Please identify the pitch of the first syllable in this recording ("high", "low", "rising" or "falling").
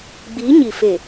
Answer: rising